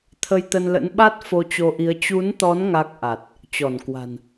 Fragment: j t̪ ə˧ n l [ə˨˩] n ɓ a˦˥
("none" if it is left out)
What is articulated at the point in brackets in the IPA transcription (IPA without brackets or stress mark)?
ə̰˧˥